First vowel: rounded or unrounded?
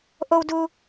rounded